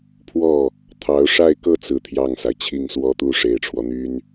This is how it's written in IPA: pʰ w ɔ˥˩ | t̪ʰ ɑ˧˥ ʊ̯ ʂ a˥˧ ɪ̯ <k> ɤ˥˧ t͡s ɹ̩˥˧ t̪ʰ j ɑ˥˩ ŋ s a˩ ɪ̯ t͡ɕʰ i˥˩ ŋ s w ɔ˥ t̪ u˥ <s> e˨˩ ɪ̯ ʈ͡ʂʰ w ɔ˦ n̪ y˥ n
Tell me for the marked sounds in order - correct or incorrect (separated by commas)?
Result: correct, incorrect